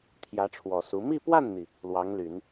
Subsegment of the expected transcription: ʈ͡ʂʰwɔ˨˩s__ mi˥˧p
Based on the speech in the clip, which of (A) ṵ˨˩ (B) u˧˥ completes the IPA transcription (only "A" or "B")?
B